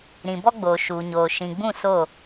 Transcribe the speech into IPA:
ɾ ĩ˨ b ɔ˦ ɡ͡b oː˨ ʃ uː˨ ɲ oː˨ ʃ ĩ˨ ɡ͡b ũ˦˨ s o˦˨

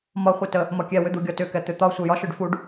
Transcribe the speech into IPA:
m ɒ χʷ ɛ t ə | m ɒ kʲ ɛ w ʏ d̪ u ɡʲ ɒ t ʏ k ɛ t̪ ʏ t̪ ɒ sʷ ɛ j ɒ ʃ ʏ ɖ f u ɖ

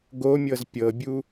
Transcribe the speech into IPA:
ɡ o mʲ ɤ z pʲ ɤ bʲ u

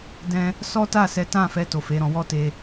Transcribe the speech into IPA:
d ɛ̃˧ | s ɔ˦ t a˦˨ s ɛ˨˦ t ã˦˨ f ɛ˧ t o˨ f e˨˦ ɾ ɔ̃˧ w ɔ˦ t e˧

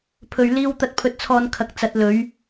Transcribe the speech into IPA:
pʰ ɵ˨ ɥ l iː˧ w t̪ ɐ˧ t̚ pʰ ɵ˧ t̚ t͡sʰ ɔː˧ n kʰ ɐ˨ k̚ t͡s ɐ˨˥ t̚ l ɵ˨˥ ɥ

